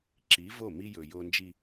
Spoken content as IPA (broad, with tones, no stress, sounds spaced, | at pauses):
ǁ i˨˦ v o˦˨ m i˦ j ɵ˨ j o˨ n d͡ʒ i˨